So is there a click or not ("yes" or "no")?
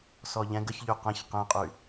no